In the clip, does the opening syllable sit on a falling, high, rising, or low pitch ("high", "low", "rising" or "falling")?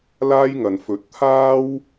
high